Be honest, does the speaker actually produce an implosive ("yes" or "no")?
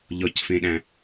yes